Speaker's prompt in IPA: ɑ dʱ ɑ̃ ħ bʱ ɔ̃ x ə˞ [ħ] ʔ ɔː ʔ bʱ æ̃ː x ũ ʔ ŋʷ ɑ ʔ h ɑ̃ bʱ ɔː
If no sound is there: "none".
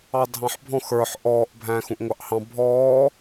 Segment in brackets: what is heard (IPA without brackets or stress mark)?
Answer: ħ